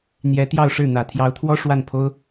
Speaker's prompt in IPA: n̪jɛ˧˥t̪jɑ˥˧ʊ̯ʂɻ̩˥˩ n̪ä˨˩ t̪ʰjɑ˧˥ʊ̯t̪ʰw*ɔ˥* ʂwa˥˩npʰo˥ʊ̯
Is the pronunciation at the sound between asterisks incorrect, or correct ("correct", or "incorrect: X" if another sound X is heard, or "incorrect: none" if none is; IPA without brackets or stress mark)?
correct